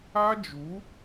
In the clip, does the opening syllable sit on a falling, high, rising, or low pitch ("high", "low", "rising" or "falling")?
high